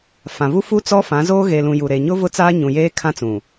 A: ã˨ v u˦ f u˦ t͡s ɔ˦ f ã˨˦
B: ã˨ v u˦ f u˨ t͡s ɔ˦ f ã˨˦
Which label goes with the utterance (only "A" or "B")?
A